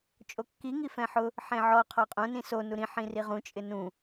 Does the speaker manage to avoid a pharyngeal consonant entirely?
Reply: no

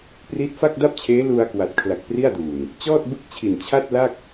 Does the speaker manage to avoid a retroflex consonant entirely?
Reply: yes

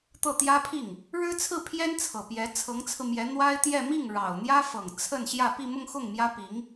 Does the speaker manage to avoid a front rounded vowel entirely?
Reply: yes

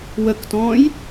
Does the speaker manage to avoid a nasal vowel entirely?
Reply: no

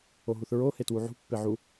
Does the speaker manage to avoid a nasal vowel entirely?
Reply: yes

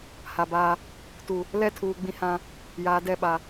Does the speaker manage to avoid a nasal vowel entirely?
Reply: no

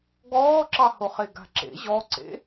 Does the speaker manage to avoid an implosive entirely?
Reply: yes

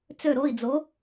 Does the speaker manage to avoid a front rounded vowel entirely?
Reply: no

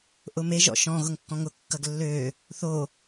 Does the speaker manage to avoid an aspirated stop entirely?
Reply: yes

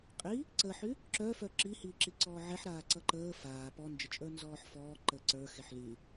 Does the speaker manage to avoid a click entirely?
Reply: no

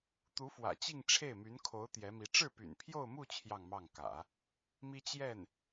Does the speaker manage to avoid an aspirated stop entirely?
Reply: no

